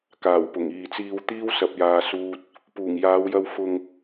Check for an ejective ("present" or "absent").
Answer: absent